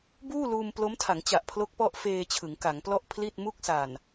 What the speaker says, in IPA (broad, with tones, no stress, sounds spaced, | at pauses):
b uː˥˩ l uː˧ m p l o˦˥ m tʰ a˩˦ ŋ t͡ɕ a˨˩ ʔ pʰ l o˦˥ k̚ p ɔ˦˥ ʔ f eː˧ t͡ɕʰ ɯ˩˦ ŋ k a˩˦ ŋ p l ɔ˥˩ ʔ pʰ l i˥˩ t̚ m u˥˩ k̚ s a˨˩ n